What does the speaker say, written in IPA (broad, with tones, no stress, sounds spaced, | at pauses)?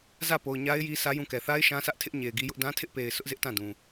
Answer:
z ä˦˨ p o˨ ʊ̯ ɲ a˦ ɪ̯ j i˦ s ä˦ j ũ˦˨ k ɛ˨ θ a˦ ɪ̯ ʃ ã˦ s ä˦ ʔ tʰ ɪ˦ ʔ ɲ e˨ ɪ̯ ɡ i˦ j ʊ˦ ʔ d ã˦ tʰ ɪ˦ ʔ p e˨ ɪ̯ s ʊ˦ ʔ z ɪ˦ ʔ t ã˦˨ d ũ˨